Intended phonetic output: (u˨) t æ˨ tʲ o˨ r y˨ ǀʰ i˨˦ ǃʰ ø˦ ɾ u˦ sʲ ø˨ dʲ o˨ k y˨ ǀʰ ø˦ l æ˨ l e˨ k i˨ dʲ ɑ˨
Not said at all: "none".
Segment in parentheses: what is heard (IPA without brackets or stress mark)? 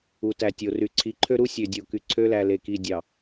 u˨